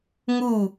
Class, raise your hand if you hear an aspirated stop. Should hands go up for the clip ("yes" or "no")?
no